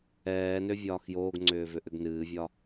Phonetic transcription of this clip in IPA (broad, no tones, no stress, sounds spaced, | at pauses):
ɛː n ø vʲ ɒː x j oː ɡ ŋ͡ǀ ʏː v ʏ ʔ ʏ ɡ n ɨː vʲ ɒ